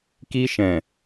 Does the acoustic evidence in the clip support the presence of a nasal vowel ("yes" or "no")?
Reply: yes